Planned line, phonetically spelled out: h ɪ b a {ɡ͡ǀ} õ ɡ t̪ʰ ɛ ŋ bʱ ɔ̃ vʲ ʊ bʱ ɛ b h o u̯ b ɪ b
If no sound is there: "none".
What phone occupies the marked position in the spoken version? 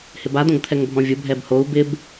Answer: d̪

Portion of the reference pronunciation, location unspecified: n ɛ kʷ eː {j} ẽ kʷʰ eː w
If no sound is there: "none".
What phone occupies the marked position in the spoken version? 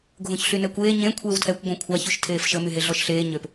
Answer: ɲ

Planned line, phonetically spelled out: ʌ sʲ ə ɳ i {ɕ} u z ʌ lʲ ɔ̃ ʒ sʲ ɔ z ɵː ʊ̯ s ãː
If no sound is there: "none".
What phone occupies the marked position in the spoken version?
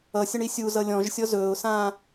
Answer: sʲ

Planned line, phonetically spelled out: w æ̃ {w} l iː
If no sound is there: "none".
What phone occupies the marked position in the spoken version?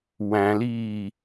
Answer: none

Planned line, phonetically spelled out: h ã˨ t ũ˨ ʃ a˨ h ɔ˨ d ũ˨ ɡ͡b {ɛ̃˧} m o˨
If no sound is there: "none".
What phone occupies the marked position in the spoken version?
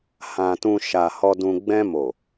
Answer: ɛ̃˧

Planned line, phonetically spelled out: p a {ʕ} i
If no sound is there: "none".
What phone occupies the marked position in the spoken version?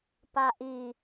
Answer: ʔ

